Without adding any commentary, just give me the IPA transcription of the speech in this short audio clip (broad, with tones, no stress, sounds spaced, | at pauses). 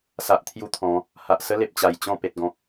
s a˨ ʔ t̪ʰ j u˦ t̪ʰ ɔ̃˨˦ | h a˨ ʔ s ə˦ l e˨ p̚ t͡ɕ a˨˩ j t͡ɕ ɔ̃˥˧ p e˨ t̚ ɡ ɔ̃˨ k̚